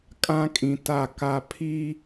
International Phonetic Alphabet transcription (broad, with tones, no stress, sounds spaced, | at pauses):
kʼ ã˦ kʼ ĩ˨ t a˨ k a˨ pʰ i˦